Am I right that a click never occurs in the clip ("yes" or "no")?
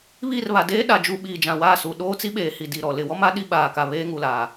yes